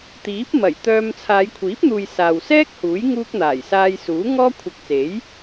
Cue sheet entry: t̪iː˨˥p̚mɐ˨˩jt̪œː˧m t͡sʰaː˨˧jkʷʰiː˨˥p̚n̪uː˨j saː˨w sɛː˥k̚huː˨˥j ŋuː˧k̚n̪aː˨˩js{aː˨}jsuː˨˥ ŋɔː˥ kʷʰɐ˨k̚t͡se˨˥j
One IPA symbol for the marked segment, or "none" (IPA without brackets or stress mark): aː˧